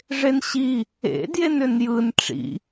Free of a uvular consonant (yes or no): yes